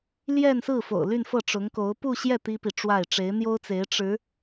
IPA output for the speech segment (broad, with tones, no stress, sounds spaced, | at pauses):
l j ɛ˥˧ n s ɹ̩˥˩ f o̰˨˩ ʊ̯ l y˥˧ n f ɤ˥˩ ʈ͡ʂ ʊ˧˥ ŋ k o˧˥ ʊ̯ p u˥˧ ɕ j ɛ˥˩ t̪ i˥ p i˨ ʈ͡ʂ w a˥˩ ɪ̯ ʈ͡ʂ e˧˥ ɪ̯ n̪ j o˥ ʊ̯ t͡s e˧˥ ɪ̯ ʈ͡ʂ ɻ̩˧˥